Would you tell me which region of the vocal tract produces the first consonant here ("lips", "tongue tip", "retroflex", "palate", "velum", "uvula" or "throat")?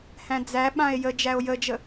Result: throat